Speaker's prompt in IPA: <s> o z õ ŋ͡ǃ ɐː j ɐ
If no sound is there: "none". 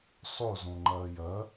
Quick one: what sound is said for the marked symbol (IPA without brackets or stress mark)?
sˤ